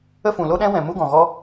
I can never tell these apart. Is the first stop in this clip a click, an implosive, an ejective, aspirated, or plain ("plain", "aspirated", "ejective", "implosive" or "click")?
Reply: implosive